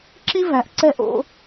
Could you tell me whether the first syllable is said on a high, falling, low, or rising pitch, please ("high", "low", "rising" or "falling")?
high